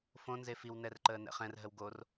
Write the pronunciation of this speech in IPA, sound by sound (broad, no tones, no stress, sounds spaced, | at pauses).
f õ n z e f i w n ɛ r ǃ əː n ɛ̰ χ ɛ̃ r ɦ ə w ɡ o r